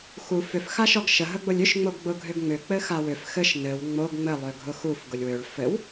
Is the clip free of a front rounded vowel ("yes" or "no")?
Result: no